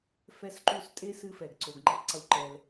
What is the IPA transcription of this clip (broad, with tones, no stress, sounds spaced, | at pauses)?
f ɛ˦ s ǃ u˦ s tʼ e˥ s ɨ˥ f ɛ˩ ɡ ǀ o˨ ɡ ŋ͡ǃ ɨ˦ tˤ ǀ u˨ ǃ ɛ˩ l